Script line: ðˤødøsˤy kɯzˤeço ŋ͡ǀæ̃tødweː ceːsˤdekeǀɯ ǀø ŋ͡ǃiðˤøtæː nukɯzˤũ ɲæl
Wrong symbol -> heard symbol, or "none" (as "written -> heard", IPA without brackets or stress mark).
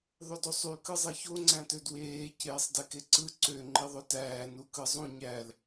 none